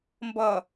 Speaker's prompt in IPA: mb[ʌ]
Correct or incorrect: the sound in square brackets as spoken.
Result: correct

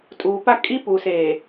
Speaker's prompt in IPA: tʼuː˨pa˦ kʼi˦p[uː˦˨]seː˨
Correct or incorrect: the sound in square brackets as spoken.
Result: incorrect: uː˨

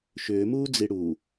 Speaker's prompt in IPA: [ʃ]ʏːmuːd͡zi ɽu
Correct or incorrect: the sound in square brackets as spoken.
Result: correct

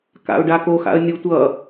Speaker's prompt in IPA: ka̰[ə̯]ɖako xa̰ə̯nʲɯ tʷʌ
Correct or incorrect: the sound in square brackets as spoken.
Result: incorrect: ʊ̯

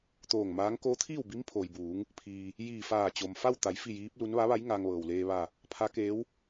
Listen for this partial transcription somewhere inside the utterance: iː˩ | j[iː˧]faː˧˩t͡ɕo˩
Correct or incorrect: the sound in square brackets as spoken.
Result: incorrect: iː˧˩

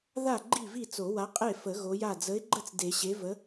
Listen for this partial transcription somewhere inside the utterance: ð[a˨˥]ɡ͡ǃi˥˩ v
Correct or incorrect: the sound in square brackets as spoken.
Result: incorrect: a˥˩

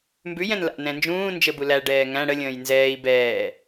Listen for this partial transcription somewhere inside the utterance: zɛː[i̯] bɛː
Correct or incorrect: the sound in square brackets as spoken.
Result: correct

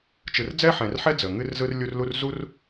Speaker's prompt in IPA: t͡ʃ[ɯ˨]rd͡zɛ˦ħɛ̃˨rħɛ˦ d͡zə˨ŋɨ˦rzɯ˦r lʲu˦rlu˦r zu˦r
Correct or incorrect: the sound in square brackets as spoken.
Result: correct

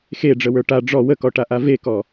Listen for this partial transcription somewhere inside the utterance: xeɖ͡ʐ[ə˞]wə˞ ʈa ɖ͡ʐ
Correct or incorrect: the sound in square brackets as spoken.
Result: incorrect: ə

